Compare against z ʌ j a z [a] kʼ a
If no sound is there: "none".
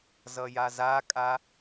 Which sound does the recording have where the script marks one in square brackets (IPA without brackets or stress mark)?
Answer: a